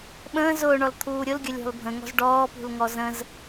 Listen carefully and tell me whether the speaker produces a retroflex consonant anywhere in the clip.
yes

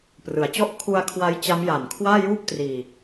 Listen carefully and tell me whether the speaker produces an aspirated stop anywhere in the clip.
yes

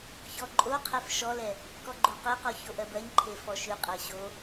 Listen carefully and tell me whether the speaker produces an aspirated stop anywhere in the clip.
yes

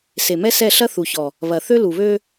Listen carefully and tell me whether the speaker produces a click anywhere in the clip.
no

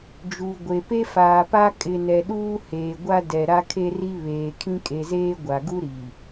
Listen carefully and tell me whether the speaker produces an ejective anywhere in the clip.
yes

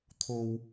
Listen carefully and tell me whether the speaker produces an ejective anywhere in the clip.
no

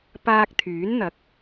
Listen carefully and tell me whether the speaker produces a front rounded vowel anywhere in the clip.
yes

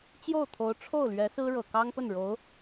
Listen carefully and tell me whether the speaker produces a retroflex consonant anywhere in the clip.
yes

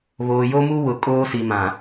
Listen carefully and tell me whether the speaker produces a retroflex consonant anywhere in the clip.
no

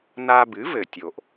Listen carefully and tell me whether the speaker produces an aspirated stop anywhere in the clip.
no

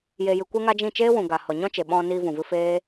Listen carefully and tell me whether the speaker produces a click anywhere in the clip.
no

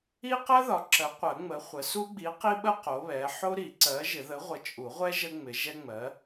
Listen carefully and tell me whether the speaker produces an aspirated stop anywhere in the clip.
no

